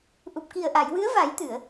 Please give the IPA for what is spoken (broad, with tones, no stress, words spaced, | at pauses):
ʔu˨˩p̚ki˨˩ə̯ʔa˨˩˨j wɨ˧˥ə̯va˨˩˦j t̪ɨ˨˩˨ə̯